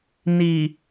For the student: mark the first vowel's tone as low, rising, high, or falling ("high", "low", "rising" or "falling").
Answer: low